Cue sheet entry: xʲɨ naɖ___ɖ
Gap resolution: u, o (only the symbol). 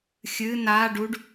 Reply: u